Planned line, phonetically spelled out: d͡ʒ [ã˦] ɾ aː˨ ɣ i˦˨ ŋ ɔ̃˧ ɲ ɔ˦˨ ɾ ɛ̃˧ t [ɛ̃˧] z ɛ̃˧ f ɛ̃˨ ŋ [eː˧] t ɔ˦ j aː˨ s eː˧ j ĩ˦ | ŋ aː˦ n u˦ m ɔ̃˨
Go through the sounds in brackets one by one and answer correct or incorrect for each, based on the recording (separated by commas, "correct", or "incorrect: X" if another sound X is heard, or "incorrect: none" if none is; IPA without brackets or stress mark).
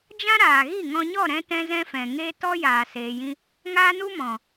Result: correct, correct, correct